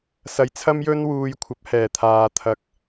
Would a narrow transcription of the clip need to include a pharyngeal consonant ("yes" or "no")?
no